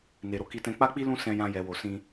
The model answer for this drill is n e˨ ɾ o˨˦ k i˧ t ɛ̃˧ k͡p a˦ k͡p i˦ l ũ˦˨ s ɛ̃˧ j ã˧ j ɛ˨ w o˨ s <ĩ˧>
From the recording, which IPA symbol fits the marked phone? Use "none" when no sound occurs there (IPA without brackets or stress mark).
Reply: ĩ˧